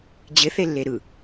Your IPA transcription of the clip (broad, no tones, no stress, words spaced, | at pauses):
d͡ʑɪθelːe ɾɯ